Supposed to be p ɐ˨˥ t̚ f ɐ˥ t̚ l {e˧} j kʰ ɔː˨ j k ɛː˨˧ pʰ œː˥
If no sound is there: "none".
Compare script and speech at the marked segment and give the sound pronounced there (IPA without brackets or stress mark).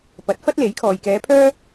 e˨˥